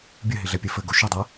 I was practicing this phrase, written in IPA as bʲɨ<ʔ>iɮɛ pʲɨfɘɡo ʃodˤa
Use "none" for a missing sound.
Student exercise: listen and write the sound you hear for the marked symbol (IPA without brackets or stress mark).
ɦ